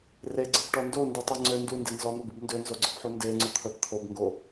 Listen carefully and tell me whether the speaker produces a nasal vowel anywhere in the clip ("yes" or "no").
no